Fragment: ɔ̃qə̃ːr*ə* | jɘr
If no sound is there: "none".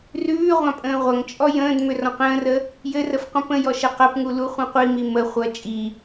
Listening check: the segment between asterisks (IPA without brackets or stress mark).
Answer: ə